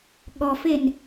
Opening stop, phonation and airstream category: implosive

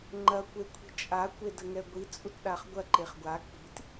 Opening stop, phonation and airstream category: click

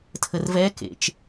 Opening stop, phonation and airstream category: aspirated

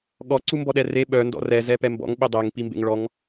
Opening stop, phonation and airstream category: implosive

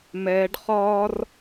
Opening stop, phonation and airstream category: plain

